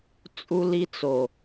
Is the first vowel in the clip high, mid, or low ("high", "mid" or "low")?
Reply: high